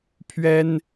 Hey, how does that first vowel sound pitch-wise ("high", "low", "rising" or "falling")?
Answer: high